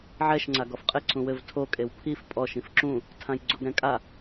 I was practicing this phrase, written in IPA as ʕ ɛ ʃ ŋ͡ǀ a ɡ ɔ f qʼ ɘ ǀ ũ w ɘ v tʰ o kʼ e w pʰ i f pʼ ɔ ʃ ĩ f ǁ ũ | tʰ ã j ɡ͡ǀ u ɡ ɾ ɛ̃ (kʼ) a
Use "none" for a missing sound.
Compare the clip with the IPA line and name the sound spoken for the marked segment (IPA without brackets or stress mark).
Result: kʼ